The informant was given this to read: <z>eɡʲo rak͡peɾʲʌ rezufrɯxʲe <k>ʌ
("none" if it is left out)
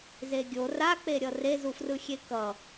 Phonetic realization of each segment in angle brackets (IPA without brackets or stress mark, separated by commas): z, k